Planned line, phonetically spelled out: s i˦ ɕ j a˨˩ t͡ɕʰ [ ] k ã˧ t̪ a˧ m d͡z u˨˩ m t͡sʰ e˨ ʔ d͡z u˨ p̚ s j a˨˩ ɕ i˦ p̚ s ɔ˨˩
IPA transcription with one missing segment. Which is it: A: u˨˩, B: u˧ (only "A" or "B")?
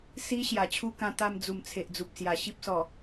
B